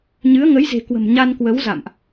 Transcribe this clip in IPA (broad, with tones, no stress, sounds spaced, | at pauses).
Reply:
ɲ ɨ˨˦ ə̯ ŋ ə˨˦ j z e̤˨˩ k w ə̤˨˩ m ɲ a˧ n k w ə˨˦ w z a̰˧˨ m ʔ